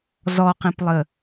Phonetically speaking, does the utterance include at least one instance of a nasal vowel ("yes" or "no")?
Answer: yes